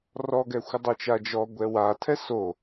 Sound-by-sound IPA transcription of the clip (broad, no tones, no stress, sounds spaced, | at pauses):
r ɔ ɡ ɛ xʷ ɘ dˤ o t͡ʃ a d͡ʒ ɔ ɡʷ ɛ w a tʰ ɛ s o